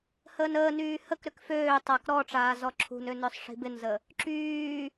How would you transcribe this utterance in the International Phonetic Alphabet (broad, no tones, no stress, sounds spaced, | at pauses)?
h əː n əː n yː h ə k ɾ ʏ k f øː tˤ a k ɾ ɔ ʈ͡ʂ aː z ɔ ǁʰ ṳ n ø n œ sˤ ʂ i̤ b ɪ n z ə | ǁ yː